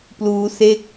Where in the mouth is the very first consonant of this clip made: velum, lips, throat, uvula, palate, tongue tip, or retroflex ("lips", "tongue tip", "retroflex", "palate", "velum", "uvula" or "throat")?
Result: lips